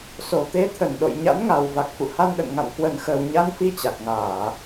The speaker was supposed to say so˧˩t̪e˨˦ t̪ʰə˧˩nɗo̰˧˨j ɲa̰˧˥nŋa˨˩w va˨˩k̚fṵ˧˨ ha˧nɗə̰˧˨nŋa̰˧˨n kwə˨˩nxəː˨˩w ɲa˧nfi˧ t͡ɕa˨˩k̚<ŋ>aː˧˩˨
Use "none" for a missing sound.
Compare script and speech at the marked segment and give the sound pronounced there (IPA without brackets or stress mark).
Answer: ŋ